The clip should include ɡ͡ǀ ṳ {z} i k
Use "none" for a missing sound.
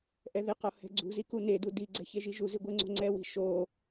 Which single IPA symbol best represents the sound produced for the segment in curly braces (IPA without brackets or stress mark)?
z